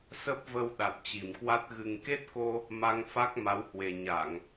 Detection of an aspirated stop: absent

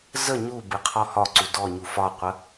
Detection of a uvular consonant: present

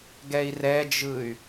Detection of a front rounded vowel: present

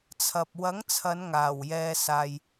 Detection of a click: absent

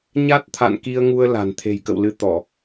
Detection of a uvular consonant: absent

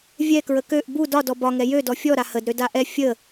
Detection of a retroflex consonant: absent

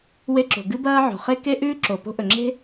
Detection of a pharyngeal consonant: present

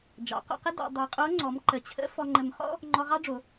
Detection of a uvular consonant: present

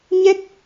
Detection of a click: absent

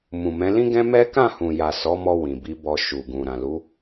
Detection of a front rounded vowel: absent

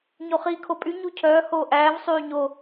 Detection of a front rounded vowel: present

